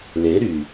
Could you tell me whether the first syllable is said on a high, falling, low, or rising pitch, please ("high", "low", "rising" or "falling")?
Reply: rising